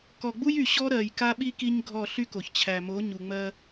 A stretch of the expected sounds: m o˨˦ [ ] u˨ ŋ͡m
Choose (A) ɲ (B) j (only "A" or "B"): A